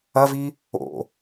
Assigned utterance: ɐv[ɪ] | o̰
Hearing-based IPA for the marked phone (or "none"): i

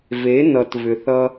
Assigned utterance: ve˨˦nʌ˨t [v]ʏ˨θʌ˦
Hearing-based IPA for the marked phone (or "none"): v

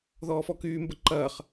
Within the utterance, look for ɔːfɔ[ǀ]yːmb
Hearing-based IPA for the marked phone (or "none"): k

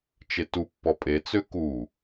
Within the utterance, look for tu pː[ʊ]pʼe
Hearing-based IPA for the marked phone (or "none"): ɔ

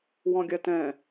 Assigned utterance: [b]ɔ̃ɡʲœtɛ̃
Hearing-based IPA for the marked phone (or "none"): w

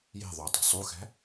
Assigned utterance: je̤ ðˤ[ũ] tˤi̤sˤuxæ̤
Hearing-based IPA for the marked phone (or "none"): u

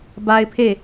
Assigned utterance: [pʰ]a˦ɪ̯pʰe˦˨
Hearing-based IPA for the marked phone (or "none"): b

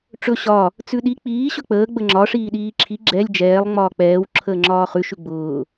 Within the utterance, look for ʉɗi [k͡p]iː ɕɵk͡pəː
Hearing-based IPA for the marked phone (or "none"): k͡p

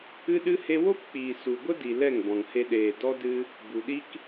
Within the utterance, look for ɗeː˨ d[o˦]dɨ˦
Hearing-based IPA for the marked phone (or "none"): ɔ˦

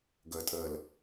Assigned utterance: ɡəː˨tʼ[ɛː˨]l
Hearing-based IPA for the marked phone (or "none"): əː˨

